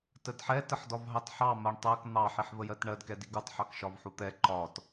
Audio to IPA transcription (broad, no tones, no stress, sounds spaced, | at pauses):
t ə d ħ ɛ t ə ħ d ɒ v ɦ ɑ t ħ ɑ m ɜ ɳ tˤ ɜ k n̪ ɑ ħ i ħ v ə j ɜ t ɳ ɜ d k ɛ d i ɡ u tˤ ħ ɑ k ʃ ɒ v ħ u t̪ ɛ ǃ ɒ t